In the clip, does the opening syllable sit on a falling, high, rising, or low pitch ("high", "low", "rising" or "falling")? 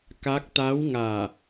rising